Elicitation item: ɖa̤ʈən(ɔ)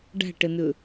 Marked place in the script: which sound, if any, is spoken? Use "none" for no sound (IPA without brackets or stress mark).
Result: ɵ